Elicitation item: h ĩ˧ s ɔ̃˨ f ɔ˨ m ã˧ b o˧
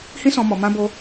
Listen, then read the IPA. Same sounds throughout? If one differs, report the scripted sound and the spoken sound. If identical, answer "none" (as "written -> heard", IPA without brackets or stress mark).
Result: f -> m